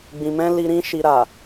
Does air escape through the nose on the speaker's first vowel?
yes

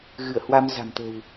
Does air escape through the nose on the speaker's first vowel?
no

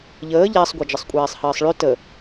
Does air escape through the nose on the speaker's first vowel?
no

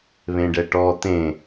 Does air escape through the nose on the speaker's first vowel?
yes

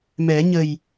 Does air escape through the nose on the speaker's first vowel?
no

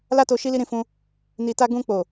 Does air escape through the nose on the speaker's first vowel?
no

